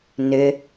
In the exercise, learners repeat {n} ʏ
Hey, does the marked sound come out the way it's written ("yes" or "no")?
yes